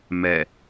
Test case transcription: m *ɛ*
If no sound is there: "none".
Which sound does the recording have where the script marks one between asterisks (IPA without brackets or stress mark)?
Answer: ɛ